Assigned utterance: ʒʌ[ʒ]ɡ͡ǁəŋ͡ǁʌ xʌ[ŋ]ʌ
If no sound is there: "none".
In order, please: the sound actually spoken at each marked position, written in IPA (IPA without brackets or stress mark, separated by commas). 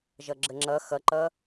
none, ǃ